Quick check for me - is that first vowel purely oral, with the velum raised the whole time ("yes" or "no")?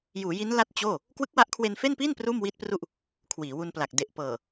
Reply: yes